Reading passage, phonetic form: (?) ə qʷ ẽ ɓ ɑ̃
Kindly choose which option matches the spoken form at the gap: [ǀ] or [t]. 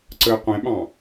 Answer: ǀ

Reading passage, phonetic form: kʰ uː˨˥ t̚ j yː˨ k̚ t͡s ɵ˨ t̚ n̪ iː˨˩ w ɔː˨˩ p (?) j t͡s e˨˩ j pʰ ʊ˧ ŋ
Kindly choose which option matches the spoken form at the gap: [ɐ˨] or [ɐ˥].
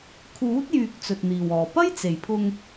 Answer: ɐ˥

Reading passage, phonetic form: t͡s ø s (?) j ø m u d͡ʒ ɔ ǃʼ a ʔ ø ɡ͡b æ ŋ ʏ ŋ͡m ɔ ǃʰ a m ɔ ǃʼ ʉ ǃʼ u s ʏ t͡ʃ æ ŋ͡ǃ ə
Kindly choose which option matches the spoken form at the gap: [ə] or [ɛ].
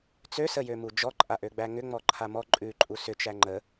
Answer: ə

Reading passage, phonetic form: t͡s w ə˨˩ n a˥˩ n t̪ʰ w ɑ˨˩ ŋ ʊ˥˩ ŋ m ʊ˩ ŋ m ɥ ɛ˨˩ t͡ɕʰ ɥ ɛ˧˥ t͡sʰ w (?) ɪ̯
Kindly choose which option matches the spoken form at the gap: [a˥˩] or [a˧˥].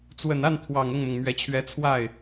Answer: a˥˩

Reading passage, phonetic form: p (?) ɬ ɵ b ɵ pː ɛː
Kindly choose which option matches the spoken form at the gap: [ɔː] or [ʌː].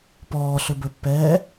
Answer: ɔː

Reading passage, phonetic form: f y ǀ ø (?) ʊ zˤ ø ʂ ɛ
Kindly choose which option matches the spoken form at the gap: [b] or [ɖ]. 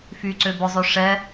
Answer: b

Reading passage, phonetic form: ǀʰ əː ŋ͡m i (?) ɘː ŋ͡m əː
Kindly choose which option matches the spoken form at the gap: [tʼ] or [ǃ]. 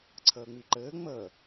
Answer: ǃ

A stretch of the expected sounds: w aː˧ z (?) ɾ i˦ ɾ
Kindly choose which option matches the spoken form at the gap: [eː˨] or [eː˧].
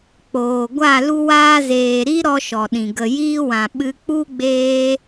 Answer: eː˨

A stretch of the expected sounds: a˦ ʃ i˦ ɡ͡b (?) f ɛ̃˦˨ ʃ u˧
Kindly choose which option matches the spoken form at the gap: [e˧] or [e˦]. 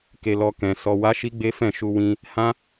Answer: e˦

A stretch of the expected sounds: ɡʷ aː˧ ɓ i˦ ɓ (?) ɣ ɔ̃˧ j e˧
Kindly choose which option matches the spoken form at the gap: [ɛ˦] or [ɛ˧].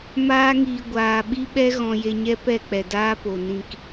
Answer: ɛ˦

